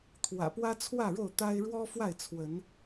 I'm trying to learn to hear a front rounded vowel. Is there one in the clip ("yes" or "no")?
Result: no